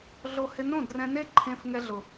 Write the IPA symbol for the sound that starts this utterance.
ɮ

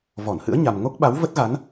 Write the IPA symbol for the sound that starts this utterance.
v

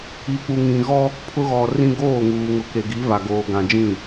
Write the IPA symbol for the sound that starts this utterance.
i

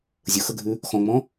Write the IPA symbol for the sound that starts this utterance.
zʲ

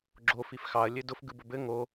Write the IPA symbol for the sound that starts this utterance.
ɡ͡ǁ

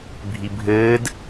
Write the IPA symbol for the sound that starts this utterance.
bʱ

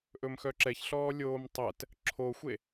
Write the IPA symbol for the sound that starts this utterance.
ʔ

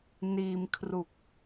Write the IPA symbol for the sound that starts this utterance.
n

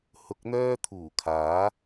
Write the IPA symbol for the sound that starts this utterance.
h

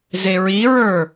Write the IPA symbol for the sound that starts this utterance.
z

